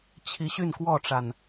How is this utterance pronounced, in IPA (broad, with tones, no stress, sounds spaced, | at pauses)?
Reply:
t͡ɕʰ i˨˦ ɕ y˥˨ n k w ɔ˥˨ ʈ͡ʂ a˨˩ n